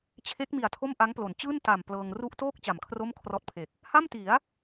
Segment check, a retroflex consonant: absent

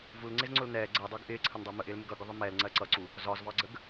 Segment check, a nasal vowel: absent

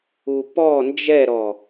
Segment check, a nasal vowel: absent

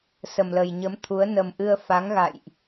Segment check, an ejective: absent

